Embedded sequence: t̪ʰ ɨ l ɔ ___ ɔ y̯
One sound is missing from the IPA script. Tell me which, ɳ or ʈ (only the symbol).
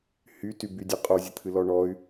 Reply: ɳ